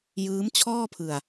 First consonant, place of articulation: palatal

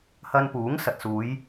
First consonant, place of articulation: glottal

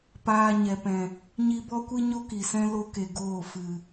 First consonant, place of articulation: labial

